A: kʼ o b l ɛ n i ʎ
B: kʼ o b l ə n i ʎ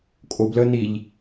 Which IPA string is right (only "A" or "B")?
B